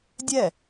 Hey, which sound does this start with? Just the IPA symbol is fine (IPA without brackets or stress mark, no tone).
dʲ